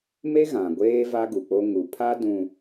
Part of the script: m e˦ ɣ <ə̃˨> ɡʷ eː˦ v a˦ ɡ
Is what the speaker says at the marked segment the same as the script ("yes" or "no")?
no